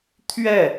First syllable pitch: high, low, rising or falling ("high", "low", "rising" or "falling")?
falling